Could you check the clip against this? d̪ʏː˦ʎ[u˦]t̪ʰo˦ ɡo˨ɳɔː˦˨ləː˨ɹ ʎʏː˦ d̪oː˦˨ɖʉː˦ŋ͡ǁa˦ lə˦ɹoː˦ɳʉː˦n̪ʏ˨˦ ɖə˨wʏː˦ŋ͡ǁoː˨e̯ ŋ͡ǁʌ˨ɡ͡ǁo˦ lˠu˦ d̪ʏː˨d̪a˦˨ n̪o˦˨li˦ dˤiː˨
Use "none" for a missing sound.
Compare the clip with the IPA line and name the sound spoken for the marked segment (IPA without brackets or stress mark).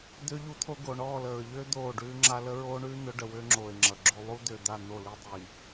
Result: u˦